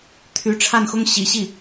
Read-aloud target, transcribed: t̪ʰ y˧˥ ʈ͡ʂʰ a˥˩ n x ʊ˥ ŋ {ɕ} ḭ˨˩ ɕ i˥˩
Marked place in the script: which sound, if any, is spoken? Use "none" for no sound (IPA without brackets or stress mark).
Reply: ɕ